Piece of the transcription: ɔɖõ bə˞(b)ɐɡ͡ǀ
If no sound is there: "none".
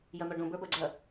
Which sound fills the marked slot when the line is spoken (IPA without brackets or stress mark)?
b